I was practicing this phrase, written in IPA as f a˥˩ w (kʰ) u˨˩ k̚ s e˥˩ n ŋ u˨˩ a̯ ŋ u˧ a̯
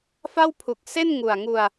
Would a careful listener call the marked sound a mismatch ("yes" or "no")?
yes